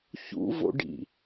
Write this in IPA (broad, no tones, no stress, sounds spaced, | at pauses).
ç ṵ v o̰ ɖ ḭ